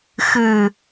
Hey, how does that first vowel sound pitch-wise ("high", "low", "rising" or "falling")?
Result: low